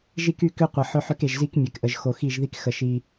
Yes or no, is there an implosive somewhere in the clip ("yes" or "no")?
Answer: no